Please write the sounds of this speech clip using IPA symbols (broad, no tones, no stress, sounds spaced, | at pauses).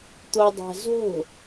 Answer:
t̪ o dˤ æ̤ z o̤